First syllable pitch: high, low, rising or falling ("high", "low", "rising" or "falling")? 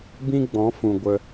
high